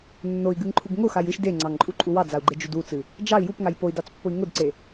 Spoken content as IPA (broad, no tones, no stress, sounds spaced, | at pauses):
nː o i̯ ɡ ɨ ŋ ǃʰ u ɡ ŋ ʊ x a j ɨ ʃ d e ŋ͡ǀ ɑ ŋ ǃʼ u ǃʼ u w ɑ d͡z a u̯ ɡ͡ǃ e d͡ʒ u d u t͡s ɨ | d͡ʒ ɑ i̯ j u p ŋ a j p o i̯ d ɑ t͡s pː ʊ i̯ ŋ ʊ d ǀ e